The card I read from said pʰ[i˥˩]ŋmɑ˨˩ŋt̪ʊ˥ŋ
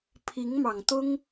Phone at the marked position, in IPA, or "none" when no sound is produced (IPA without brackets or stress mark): i˧˥